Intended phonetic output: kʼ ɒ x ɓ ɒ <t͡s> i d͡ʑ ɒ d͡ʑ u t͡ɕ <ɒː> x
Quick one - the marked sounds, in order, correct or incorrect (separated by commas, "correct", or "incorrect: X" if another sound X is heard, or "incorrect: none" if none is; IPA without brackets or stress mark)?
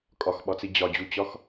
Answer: correct, incorrect: ɒ